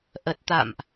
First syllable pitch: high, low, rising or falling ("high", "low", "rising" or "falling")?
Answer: low